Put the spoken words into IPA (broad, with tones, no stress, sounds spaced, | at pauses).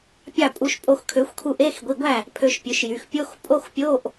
pʲ ɑ˥˩ pʼ u˧ ʃ pʼ o˧ x kʰ ø˩˥ xʷ kʰ u˧ ʔ e˧˥˧ x ɡʷ i˩˧˩ ɡʷ æ˥˩ | pʰ ø˧ ʃ pʲ ø˩˥ ʃ j y˩˧˩ x pʲ o˧˥˧ x pʼ o˧˥˧ x pʲ o˧˥˧ ʔ